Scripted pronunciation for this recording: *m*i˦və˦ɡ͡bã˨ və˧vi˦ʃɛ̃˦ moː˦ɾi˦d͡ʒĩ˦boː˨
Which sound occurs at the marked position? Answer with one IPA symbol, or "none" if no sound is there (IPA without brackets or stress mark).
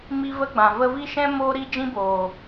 m